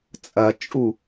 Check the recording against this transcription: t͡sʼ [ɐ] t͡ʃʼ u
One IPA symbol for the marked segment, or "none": ɐ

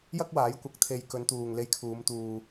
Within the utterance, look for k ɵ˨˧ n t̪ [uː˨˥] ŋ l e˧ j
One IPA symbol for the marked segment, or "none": uː˨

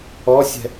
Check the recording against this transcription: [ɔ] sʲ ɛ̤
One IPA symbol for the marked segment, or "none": ɔ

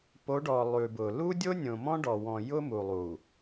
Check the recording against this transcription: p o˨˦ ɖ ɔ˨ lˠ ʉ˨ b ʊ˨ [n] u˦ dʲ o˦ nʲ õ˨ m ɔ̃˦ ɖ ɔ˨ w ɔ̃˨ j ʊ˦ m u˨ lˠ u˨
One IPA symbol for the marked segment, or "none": l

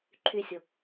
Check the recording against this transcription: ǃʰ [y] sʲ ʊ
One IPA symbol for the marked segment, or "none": y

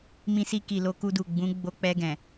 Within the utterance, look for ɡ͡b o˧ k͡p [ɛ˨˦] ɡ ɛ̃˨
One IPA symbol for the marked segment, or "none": ɛ˧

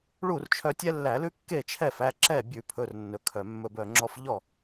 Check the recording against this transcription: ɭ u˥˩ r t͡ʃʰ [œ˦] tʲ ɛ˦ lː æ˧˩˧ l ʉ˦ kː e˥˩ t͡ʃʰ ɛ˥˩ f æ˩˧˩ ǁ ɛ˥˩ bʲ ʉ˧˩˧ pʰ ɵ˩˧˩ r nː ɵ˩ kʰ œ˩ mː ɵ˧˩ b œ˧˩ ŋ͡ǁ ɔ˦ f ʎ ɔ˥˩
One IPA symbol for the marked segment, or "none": œ˦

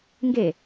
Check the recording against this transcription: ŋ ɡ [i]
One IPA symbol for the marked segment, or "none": e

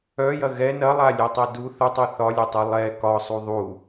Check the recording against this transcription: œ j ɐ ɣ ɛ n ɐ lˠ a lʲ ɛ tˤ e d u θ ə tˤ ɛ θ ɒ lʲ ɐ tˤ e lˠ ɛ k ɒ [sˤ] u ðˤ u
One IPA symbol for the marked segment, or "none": sˤ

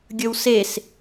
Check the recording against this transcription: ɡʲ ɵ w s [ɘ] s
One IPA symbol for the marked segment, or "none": e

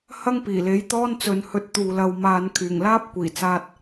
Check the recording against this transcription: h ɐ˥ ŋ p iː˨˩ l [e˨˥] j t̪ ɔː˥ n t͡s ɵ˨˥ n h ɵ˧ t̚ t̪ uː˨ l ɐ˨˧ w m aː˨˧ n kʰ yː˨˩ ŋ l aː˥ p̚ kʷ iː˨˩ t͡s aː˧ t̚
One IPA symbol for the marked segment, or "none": e˨˥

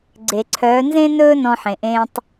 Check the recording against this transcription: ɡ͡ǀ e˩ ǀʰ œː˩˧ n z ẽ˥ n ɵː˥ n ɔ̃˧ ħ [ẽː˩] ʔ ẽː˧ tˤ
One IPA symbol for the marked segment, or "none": ẽ˩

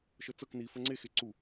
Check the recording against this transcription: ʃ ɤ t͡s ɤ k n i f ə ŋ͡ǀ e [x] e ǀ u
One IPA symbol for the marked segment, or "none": x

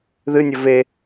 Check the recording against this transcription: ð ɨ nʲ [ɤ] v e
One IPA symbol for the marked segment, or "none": ɵ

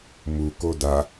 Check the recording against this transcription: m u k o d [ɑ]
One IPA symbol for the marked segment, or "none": a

